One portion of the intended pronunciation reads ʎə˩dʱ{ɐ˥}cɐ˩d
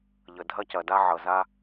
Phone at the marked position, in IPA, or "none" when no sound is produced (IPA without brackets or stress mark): ɐ˥